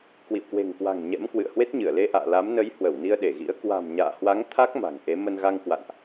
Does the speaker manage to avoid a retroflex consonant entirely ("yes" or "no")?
yes